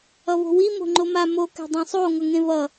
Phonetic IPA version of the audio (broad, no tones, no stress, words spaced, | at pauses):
ʌvo̤wi mo̤ŋ͡ǃoma mo kɛ̤dˤẽsˤo ŋʌŋẽvʌ